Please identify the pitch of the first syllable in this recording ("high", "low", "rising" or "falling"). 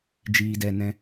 low